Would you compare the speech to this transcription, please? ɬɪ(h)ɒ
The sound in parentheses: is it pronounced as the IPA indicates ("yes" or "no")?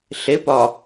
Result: no